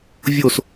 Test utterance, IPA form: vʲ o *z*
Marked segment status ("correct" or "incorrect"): incorrect